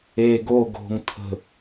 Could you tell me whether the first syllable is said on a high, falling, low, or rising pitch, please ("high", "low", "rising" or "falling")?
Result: low